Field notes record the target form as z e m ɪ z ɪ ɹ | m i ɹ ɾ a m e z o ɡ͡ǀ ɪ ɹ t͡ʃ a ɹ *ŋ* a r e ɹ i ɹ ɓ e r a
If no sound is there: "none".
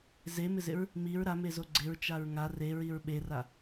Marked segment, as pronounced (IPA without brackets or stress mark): ŋ